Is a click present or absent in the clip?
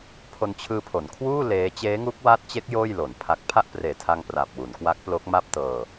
absent